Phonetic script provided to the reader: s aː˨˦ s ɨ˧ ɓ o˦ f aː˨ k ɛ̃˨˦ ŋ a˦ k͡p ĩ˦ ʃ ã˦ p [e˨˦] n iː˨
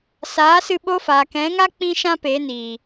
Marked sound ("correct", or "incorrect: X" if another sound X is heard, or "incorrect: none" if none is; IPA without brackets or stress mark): correct